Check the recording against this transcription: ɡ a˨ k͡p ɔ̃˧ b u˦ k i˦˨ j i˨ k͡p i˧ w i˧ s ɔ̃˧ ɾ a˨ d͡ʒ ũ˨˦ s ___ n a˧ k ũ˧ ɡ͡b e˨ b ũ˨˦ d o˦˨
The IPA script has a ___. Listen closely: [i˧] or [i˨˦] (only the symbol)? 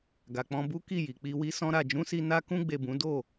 i˧